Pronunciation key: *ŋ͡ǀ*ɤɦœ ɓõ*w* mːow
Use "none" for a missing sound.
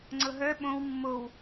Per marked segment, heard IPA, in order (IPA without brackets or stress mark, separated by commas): ŋ͡ǀ, w